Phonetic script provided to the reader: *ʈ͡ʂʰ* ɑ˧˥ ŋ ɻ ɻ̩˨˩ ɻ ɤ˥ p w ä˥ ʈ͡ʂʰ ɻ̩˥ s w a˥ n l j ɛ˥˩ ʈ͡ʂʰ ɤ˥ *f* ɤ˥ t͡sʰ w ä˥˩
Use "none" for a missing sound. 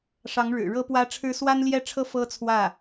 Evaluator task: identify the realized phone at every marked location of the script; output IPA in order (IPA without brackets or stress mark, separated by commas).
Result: ʂ, f